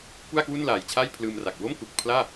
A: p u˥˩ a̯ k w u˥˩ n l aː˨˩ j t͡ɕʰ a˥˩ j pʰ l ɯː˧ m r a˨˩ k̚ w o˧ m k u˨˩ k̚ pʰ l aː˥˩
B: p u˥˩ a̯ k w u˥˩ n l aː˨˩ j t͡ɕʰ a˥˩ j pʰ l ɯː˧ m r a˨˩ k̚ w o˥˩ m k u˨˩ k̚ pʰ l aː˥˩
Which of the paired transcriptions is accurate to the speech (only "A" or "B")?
B